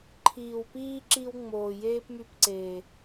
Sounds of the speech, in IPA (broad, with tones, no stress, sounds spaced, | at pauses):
ǃʰ iː˨ w p iː˦ ǁ i˦ w ŋ͡m oː˨ j eː˦ p m y˧ p ǀ eː˨